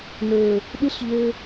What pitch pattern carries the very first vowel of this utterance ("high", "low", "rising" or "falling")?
low